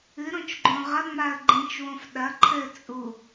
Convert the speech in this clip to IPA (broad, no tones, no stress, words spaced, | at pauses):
ɨɾõt͡ʃɡ͡ǃõ ʁɐŋ͡maə̯ ɡ͡ǃĩt͡ʃwõf ɗɐ ǃʰɘ t͡sʼu